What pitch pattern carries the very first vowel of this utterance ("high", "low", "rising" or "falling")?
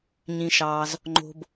low